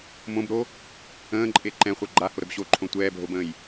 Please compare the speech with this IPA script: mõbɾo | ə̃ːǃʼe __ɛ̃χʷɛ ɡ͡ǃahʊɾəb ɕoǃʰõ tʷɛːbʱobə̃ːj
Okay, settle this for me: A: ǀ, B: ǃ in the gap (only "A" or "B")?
B